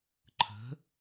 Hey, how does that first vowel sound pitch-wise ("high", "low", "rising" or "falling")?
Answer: rising